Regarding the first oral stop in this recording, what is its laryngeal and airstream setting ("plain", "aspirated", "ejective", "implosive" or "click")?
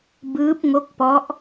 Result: plain